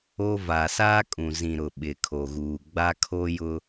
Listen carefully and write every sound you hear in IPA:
o˦ v a˨ s aː˦ kʼ ũ˨ z ĩ˨ ɾ ʊ˨ ɓ ɪ˨ kʰ o˨ ɣ uː˨ ɡ͡b a˦ kʰ o˦ j ʊ˦

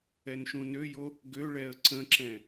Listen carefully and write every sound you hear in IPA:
ɛ n ʃ ũ n ø j o | ɡ ø ɭ ɛ ə̯ ǀ ə̃ ǁ ɛ̃

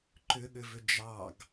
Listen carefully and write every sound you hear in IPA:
ǃ ʏ ɠ ʏ v ʏ d͡ʒ ɑ ɡ

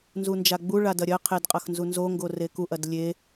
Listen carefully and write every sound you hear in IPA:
n z u n d͡ʒ a ɡ͡b u ɭ a d ɐ ɾʲ ɐ qʰ e d qʼ ɐ x n z u n z o ŋ ɡ o r e k u ʔ ɐ d lʲ e

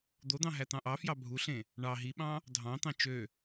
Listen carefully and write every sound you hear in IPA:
d̪ o d̪ ɑ̃ ɦ æ t̪ ɑ̃ ʔ ɑ f j ɑ bʱ u ɬ ẽ | ɳ ɑ ɦ i ɓ ɑ̃ | dʱ ɑ̃ t̪ ɑ̃ t͡ʃ ø

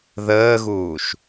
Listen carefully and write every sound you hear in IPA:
ð əː ɣ uː ʃ

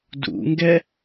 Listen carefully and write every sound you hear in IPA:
d ṵ ŋ ɡ ɛ

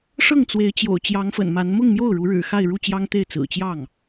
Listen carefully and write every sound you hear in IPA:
ʂ ɤ˥˩ ŋ t͡s w e˧˥ ɪ̯ t͡ɕ j o̰˨˩ ʊ̯ t͡ɕ j ɑ˧˥ ŋ f ə̰˨˩ n m a˧˥ n m ʊ˥˧ ŋ m j o˥˩ ʊ̯ ɻ u˧˥ ɻ ɻ̩˨˩ x a˥˧ ɪ̯ ɻ u˥˩ t͡ɕ j ɑ˥ ŋ t̪ e˥˩ ɪ̯ t͡s ɹ̩˨˩ t͡ɕ j ɑ˥˩ ŋ

